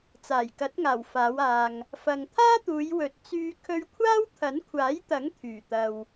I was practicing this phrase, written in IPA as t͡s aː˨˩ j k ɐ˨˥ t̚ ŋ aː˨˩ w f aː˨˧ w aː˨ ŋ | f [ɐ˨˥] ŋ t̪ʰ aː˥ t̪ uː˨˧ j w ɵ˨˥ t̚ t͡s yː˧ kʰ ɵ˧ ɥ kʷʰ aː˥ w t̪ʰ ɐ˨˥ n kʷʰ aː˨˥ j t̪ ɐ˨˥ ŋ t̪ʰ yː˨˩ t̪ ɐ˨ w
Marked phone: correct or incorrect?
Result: incorrect: ɐ˨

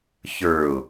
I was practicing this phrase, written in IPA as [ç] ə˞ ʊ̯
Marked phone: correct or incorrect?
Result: correct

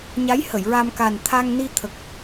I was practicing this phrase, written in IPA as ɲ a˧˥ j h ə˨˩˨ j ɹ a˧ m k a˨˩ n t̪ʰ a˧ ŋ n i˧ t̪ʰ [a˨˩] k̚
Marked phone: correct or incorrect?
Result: incorrect: ə˨˩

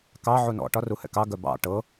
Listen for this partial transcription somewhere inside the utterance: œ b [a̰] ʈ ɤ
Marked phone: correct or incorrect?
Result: incorrect: ɑ̰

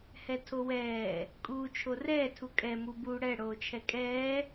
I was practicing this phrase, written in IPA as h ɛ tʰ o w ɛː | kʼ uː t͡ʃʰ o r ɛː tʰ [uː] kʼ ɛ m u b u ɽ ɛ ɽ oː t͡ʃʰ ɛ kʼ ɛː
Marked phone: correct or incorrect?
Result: incorrect: u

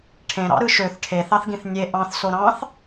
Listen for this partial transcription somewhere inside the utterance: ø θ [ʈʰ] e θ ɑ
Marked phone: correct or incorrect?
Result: correct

